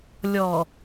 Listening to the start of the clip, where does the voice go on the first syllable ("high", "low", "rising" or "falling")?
low